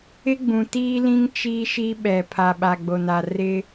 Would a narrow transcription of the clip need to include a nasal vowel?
yes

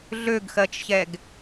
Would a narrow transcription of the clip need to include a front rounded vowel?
yes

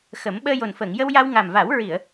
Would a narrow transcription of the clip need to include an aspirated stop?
no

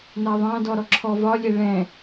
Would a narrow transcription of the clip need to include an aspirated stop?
yes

